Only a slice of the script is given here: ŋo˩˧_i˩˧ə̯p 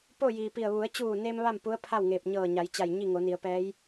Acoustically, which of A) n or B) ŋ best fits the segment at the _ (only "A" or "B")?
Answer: A